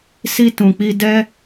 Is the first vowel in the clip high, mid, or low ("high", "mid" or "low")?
high